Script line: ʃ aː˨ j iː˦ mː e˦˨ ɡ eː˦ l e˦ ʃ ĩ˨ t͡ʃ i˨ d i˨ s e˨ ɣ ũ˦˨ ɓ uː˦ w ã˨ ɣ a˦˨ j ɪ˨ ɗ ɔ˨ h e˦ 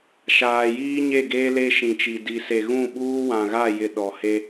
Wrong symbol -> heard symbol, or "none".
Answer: mː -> ɲ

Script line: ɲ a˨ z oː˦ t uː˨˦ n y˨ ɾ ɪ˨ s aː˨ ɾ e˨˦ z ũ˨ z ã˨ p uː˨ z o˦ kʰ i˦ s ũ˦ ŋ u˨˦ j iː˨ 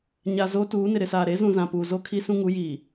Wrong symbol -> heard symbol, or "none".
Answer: y˨ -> ɪ˨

